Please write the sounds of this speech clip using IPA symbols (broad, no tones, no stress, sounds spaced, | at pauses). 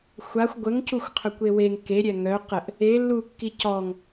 xʷ a xʷ ɡʷ ə ŋ c u xʷ qʰ œ kʷ e w e ŋ k e ɾʲ ɛ ŋ œ q ə ʔ | e lː u kː i c ɔ ŋ